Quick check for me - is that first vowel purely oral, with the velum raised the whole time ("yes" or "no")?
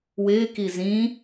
yes